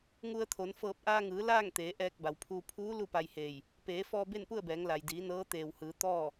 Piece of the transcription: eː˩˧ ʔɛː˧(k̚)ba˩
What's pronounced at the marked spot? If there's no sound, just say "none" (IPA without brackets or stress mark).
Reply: k̚